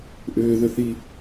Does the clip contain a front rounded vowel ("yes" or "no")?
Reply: yes